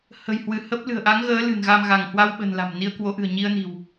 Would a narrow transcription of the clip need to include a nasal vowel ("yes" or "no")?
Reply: no